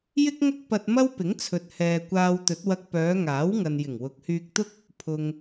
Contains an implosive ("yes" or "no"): no